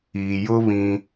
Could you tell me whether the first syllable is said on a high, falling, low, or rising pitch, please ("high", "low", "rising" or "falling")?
low